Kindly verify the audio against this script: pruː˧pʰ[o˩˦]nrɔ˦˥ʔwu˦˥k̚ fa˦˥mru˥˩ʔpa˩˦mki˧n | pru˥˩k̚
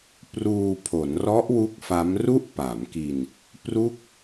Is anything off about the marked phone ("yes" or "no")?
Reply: no